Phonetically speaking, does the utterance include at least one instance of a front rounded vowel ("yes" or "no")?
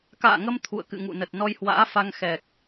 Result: no